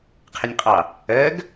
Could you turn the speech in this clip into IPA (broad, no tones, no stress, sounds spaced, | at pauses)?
qʰ ɪ nʲ qʼ ɑ | ɜ ɡ